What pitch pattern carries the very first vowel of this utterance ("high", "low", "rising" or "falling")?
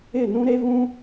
falling